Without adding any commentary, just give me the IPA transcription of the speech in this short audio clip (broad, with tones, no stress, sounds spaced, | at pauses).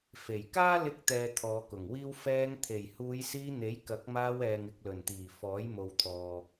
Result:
f e˨˩ j k aː˥ l ɪ˧ k̚ t̪ ɛː˨ t̪ʰ ɔː˨˧ k ʊ˨˩ ŋ w iː˥ w f ɛː˧ ŋ t̪ʰ e˨˩ j h uː˨˧ j s iː˧ n̪ e˨˥ j k ɐ˨˥ k̚ m aː˧ w ɛː˨ ŋ ɪ˨ k̚ l ɵ˨˩ n t̪ iː˨˩ f ɔː˨˥ j m o˨ w t̪ʰ ɔː˨